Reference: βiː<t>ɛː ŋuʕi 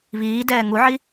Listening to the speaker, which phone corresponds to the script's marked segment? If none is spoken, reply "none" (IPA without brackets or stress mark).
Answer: d